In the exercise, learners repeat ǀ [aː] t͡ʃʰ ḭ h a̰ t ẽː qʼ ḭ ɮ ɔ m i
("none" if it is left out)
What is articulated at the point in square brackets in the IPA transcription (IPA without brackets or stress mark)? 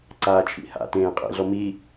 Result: aː